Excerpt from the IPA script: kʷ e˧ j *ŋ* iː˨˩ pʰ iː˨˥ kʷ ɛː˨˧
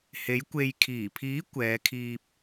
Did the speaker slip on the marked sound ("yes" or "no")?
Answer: yes